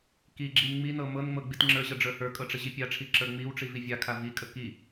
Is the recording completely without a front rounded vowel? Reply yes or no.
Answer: yes